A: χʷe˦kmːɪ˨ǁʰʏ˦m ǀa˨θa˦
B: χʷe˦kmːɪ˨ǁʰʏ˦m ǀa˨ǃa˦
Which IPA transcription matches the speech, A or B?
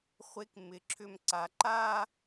B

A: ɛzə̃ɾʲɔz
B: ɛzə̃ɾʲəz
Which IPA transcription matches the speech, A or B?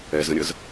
B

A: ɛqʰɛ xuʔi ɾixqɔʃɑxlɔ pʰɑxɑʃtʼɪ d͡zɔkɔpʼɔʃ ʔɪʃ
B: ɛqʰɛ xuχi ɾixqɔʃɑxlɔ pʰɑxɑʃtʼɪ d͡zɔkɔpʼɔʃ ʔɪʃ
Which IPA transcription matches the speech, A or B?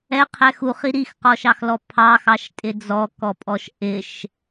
B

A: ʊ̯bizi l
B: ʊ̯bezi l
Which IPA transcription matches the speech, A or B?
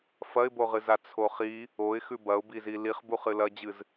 A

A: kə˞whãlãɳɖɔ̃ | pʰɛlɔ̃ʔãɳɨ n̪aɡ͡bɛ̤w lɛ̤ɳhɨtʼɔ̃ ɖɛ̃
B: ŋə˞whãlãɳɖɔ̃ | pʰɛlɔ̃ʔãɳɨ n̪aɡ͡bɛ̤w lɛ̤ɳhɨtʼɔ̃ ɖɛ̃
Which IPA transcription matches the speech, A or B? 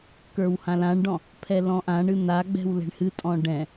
A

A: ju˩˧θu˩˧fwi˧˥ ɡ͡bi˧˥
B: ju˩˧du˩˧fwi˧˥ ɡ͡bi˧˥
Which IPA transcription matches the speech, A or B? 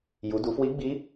B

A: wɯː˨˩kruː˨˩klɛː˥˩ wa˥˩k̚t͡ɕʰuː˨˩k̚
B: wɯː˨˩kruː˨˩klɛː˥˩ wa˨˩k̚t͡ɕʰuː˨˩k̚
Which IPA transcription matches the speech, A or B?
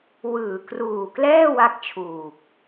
A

